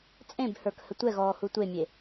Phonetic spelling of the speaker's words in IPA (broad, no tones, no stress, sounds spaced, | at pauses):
t͡sʼ ẽ b h ə˞ k h ə tʷ ɛ ɣ ɔː h u tʷ e mʲ e